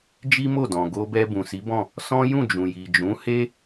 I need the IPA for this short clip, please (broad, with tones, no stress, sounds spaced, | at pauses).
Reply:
d͡ʒ i˦ m o˦˨ d ɔ̃˨ ɡ o˧ b ɛ˧ b ũ˨ s i˨˦ b ɔ̃˦˨ | s ɔ̃˦ j ũ˦˨ d͡ʒ ũ˨ j i˨ d͡ʒ ũ˨˦ h e˦